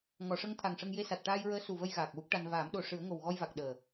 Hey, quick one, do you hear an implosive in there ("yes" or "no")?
yes